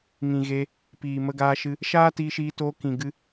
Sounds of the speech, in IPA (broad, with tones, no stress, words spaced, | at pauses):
ŋĩ˨ɣe˧ | piː˨mə˧ɡaː˧ʃɨ˧ | ʃaː˦tiː˧ʃiː˧toː˧ kĩ˨ɡɨ˧